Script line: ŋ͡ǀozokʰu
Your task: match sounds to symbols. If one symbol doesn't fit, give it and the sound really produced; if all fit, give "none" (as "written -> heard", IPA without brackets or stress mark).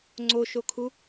z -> ʃ